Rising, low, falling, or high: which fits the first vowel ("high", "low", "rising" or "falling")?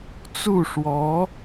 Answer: falling